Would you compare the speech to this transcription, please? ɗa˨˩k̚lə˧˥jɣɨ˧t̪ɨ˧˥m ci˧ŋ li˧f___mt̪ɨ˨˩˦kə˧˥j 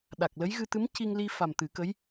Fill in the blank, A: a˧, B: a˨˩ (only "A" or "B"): B